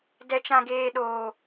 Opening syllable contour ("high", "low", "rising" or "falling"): high